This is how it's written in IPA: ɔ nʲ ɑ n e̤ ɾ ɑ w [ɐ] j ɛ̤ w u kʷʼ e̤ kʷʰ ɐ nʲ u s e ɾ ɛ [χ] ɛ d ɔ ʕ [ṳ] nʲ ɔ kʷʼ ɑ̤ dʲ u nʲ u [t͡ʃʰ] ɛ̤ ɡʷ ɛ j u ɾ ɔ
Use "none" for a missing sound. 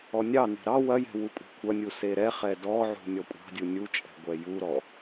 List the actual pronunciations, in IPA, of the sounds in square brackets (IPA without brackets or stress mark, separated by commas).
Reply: ɐ, χ, ṳ, t͡ʃʼ